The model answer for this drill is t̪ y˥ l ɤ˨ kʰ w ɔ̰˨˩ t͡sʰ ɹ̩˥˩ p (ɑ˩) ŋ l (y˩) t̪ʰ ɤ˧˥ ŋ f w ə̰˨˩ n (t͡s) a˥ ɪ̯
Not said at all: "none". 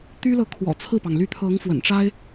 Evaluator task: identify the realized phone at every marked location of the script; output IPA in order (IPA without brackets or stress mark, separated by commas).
ɑ˩, y˧˥, ʈ͡ʂ